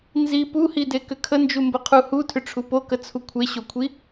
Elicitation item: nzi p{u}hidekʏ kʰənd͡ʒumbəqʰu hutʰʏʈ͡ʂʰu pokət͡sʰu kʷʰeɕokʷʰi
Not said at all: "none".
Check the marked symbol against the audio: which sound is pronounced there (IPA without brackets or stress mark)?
u